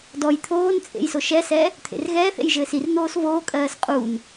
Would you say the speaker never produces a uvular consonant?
no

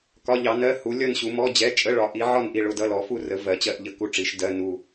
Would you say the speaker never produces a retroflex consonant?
no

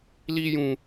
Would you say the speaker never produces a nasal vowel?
no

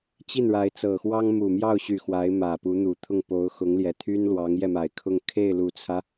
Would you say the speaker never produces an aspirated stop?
no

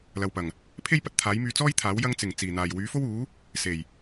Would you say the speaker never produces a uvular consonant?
yes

